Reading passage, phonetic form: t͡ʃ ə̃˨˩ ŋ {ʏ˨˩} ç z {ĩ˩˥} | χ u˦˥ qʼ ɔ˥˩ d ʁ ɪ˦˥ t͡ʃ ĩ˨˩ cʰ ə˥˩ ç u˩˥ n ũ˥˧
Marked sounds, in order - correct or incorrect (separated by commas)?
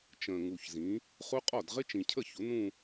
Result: incorrect, correct